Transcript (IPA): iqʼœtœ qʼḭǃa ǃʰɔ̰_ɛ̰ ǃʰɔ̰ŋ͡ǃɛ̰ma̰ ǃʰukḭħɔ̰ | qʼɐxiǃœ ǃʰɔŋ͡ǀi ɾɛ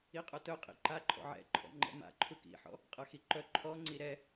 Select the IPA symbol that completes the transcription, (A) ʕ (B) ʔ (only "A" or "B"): A